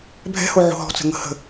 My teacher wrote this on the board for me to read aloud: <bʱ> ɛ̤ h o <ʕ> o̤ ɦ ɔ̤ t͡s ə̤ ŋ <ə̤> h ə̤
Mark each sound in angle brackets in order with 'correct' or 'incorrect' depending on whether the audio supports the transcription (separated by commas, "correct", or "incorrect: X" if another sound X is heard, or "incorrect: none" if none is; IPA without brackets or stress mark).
correct, correct, correct